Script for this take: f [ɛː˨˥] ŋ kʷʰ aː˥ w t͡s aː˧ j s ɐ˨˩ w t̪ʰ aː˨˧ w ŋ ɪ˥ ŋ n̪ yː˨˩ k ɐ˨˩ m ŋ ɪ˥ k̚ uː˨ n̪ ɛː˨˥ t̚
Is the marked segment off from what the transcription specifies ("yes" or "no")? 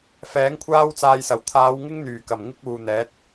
no